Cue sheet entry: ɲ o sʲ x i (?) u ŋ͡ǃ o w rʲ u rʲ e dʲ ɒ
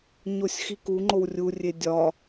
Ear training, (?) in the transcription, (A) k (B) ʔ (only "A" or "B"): A